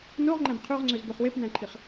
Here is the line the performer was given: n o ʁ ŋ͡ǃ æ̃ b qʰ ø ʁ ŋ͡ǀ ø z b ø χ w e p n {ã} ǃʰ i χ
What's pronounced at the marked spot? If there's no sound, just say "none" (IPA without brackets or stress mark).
æ̃